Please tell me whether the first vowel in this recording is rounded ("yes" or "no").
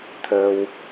no